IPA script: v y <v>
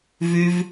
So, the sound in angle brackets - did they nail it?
yes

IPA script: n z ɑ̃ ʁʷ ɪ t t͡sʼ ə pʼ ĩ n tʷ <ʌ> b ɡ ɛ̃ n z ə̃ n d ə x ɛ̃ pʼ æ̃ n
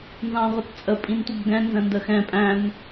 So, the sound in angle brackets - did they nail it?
yes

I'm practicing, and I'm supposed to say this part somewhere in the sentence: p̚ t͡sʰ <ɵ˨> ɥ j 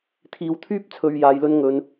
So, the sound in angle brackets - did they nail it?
yes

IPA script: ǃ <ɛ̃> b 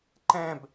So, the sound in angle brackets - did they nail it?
yes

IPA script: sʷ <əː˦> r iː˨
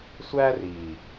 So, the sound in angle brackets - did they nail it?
no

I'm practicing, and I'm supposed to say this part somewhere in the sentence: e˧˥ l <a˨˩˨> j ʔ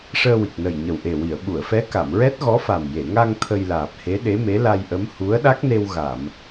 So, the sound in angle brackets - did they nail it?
no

